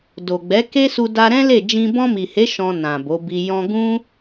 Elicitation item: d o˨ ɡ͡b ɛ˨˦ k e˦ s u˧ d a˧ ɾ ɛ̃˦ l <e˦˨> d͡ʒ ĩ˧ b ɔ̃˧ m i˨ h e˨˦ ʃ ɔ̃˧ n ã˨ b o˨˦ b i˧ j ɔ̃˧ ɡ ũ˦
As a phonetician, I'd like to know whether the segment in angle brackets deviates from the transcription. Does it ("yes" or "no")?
no